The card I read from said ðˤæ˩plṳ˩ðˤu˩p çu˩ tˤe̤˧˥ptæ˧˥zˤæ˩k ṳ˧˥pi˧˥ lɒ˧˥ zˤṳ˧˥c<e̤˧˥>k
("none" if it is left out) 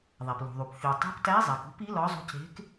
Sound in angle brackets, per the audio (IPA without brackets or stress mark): e̤˧˥